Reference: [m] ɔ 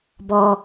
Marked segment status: incorrect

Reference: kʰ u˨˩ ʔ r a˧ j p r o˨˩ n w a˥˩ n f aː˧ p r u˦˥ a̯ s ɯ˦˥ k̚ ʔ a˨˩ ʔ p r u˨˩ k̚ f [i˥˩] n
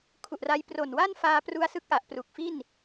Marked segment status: correct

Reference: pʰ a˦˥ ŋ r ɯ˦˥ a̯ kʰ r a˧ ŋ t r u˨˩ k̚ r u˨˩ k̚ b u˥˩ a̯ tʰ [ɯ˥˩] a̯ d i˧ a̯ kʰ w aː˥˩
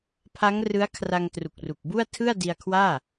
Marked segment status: correct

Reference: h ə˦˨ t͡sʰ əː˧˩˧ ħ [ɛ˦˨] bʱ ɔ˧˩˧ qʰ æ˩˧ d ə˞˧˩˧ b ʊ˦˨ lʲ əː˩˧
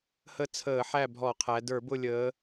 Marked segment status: incorrect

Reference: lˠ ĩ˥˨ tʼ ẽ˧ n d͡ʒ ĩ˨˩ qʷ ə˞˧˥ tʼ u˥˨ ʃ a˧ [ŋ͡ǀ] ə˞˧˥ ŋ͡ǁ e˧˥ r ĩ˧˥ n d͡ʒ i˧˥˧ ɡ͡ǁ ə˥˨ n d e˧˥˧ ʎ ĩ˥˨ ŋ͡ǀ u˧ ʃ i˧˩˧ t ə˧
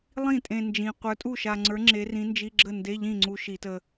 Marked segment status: correct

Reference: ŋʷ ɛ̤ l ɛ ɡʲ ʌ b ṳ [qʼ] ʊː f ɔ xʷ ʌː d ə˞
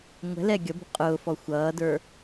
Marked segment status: correct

